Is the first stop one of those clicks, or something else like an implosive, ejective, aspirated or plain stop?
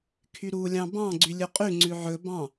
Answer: aspirated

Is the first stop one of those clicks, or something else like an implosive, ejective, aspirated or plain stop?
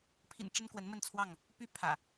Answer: aspirated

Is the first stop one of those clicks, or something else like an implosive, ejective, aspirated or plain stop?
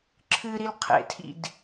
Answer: click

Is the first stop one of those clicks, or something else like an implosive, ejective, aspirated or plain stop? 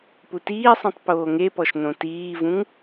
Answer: plain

